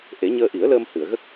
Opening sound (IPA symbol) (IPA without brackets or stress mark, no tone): ʔ